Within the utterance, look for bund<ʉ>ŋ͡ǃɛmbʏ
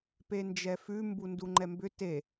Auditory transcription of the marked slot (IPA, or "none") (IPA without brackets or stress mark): u